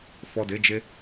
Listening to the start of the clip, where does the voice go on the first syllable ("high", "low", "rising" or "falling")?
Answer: low